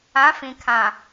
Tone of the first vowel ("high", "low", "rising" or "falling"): rising